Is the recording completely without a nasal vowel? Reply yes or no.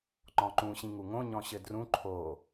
no